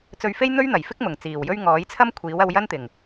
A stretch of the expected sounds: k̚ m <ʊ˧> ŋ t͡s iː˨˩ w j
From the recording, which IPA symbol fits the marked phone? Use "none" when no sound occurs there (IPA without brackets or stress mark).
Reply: ʊ˨˩